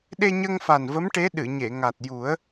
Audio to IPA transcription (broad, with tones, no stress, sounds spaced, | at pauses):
ɗ e˧ ɲ ə˧ ŋ f a˨˩ n v ə˧˥ m ʈ e˧˥ ɗ ɨ˨˩˨ ɲ e˨˩˨ ŋ a˨˩ t̚ j u˨˩˦ ə̯